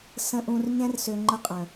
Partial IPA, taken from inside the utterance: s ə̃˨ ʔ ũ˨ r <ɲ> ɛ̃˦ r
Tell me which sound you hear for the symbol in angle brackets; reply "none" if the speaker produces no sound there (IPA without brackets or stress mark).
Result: ɲ